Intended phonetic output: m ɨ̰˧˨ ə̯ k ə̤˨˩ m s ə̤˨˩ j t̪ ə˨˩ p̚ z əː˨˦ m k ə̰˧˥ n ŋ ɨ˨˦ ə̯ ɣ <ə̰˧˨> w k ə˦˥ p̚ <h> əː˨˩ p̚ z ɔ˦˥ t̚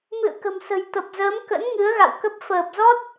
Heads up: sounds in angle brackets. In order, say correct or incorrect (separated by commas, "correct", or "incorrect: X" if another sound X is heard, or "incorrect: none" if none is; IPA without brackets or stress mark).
incorrect: a̰˧˨, incorrect: f